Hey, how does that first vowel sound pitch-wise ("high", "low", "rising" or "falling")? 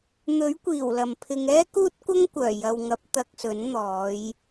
rising